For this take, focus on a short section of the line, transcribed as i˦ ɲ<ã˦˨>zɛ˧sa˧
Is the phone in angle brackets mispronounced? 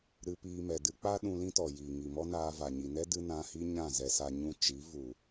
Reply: no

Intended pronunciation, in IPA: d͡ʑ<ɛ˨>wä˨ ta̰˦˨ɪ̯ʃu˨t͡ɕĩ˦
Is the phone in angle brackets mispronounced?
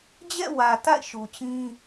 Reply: yes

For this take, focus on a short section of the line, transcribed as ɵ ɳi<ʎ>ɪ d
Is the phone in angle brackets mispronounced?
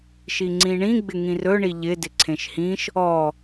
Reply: no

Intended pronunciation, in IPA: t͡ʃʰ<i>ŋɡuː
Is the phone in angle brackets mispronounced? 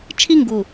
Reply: no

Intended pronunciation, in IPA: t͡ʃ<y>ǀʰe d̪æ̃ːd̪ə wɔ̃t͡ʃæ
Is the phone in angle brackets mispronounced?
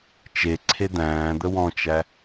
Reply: yes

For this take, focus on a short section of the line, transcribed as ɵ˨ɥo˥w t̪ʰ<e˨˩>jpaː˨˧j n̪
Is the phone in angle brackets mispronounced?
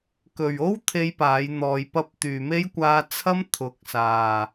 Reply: yes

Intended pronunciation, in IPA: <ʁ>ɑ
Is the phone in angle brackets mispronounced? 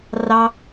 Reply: yes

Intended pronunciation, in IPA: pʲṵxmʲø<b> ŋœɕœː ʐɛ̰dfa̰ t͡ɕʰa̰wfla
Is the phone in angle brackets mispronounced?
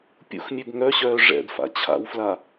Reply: no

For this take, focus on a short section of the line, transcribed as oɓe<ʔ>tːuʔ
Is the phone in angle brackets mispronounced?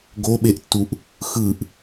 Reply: no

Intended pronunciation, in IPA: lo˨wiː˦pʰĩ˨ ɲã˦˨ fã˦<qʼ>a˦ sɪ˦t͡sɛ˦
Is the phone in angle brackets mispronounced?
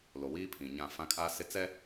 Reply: yes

